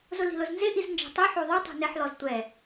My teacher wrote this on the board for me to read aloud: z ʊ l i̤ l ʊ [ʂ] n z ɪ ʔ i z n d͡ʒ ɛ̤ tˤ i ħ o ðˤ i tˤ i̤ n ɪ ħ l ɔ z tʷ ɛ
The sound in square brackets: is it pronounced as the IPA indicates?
no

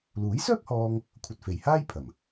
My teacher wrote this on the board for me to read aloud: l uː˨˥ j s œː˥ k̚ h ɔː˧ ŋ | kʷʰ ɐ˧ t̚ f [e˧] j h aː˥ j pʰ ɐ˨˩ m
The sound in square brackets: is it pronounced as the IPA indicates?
no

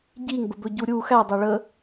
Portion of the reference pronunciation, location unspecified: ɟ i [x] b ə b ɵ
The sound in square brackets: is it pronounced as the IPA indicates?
no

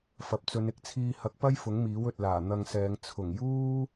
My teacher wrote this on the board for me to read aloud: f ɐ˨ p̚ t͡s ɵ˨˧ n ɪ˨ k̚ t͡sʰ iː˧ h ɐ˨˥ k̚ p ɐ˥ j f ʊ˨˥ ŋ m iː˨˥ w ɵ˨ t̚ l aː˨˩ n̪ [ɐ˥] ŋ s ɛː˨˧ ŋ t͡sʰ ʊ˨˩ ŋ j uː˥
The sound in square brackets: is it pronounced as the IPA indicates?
no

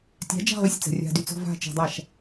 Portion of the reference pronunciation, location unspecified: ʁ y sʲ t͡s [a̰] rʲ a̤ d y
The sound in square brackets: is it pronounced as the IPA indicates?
no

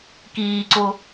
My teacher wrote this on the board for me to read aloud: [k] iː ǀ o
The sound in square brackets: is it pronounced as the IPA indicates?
yes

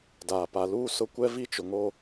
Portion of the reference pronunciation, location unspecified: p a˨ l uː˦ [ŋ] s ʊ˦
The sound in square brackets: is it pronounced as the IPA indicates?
no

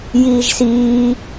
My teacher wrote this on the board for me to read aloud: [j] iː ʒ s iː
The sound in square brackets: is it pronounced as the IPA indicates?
yes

